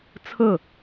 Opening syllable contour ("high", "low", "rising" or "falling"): falling